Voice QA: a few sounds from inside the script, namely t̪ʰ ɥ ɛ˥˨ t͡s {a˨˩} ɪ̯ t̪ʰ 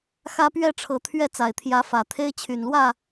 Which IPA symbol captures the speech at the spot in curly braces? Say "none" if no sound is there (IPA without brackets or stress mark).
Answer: a˨˩